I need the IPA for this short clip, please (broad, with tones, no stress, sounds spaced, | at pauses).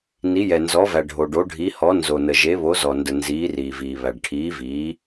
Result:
n i˨˦ j ɛ˨ n z ɔ˨˦ v æ˨ ɖʱ o˨ ɖ o˨˦ ɖʱ i˨˦ h ɔ˨˦ n z o˨ n ə˨ ʒ e˨˦ β o˨˦ z ɔ˨ n d ə˨ n z iː˨˦ r iː˨ v iː˨ β æ˨ ɖ ʈʰ iː˨˦ v iː˨˦